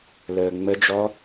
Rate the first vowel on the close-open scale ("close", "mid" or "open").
mid